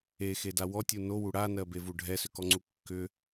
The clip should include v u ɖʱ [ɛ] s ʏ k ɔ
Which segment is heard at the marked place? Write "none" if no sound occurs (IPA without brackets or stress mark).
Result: ɛ